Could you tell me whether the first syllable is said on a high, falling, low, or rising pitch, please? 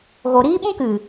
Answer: low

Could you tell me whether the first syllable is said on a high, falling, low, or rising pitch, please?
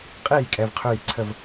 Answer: falling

